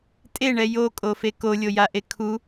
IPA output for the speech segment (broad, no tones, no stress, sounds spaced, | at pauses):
tʼ e ɳ ɛ j o kʼ o f e k o lʲ o j a ʔ e kʰ u